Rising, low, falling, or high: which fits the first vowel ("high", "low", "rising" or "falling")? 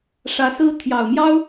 rising